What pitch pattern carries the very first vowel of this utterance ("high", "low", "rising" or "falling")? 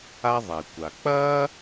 high